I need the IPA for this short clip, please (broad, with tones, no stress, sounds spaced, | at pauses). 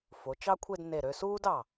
f o˩˧ t͡ʃ ɑ˥ kʷʰ e˥˧ d n e˧˩ ɾ ø˧ s uː˥ d ɑ˧˩